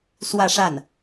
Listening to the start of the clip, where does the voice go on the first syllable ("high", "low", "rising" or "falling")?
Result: falling